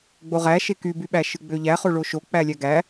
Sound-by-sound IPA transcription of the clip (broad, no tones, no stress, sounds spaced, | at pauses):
ɡ͡b o ʁ æ ʃ e k y b y ɓ æ ʃ ɯ ɡ͡b ø ʎ æ χ o ɭ o ʃ o k͡p æ lʲ æ ɡ æ